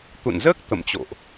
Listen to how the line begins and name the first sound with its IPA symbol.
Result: t̪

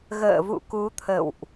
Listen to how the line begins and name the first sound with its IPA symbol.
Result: ɣ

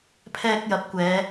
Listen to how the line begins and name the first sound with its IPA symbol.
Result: pʰ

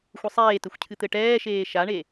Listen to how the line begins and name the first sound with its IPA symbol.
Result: xʷ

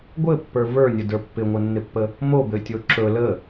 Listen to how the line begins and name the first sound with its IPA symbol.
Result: ɡʷ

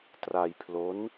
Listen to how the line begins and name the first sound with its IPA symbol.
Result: t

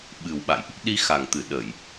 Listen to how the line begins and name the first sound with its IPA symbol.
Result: ɓ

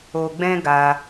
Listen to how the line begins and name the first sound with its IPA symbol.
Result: o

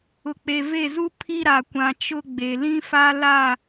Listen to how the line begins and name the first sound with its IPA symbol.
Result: ʊ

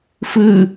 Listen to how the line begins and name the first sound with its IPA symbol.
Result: f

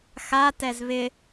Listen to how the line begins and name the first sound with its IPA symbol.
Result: x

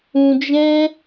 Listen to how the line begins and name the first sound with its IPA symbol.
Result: ũ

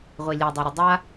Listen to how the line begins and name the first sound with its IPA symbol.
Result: ʁʷ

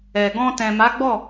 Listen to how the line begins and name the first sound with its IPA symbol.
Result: ɛ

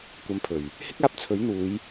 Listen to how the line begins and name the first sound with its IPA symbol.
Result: kʷ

